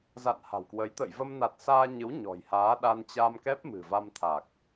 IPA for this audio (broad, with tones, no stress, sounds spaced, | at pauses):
z a̰˧˨ n h a̤˨˩ w k w ə˨˦ j t̪ ə̰˧˨ j v ə˧ m n a˨˩ t̚ s aː˧ ɲ ɨ˨˦ w ɲ ɔ̤˨˩ j h aː˨˦ ɗ a˧ n t͡ɕ a˧ m k ɛ˦˥ p̚ m ɨ̤˨˩ v a˧ m t̪ʰ a˨˩ k̚